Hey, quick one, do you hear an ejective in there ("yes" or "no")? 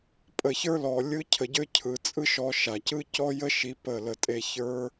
yes